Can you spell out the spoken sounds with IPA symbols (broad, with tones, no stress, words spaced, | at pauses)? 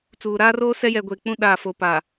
t͡suː˨ɾaː˦roː˦ sɛ˦jɛ˨ɡʷeː˨ k͡pũ˦ ɗaː˨fo˨paː˨